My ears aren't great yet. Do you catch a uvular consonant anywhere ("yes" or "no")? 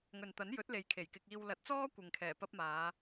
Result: no